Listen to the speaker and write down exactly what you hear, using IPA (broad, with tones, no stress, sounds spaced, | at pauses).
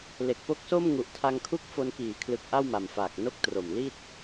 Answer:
l e˨˩ k̚ p o˦˥ k̚ s o˥˩ m ŋ u˨˩ ʔ tʰ a˧ ŋ kʰ u˦˥ k̚ f o˧ n k iː˩˦ kʰ l ɯ˨˩ k̚ ʔ a˥˩ w m a˨˩ m f aː˨˩ k̚ n o˥˩ k̚ t r o˨˩ m l i˥˩ t̚